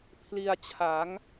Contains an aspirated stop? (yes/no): yes